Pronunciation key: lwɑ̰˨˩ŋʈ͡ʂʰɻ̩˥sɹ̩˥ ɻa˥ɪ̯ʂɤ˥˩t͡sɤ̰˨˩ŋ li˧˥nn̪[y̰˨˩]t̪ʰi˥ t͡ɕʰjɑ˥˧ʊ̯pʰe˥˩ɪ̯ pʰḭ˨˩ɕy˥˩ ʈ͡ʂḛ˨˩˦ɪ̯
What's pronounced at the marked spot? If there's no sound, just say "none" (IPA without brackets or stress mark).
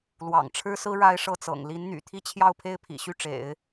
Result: y̰˨˩